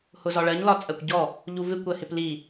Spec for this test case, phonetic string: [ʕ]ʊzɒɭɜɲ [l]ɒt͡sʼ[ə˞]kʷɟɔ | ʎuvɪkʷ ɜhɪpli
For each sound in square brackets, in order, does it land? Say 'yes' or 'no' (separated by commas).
no, yes, no